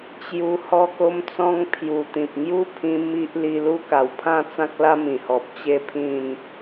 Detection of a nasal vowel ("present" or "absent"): present